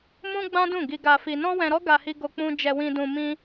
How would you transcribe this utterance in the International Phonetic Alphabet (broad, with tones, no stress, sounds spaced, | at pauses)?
m ũ˦ ɡ͡b ã˦ d ũ˦˨ ɡ i˧ ɡ a˧ f i˧ n ɔ̃˦ w ɛ̃˧ ɾ ɔ˦ ɡ a˧ h i˧ ɡ o˧ k͡p ũ˧ d͡ʒ ɛ˧ w ĩ˧ d ũ˧ m ĩ˦